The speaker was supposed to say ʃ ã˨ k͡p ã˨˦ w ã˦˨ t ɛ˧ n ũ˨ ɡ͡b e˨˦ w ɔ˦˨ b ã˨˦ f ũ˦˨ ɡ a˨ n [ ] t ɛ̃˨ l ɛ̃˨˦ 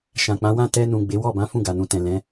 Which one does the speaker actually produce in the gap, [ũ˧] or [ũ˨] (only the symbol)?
ũ˨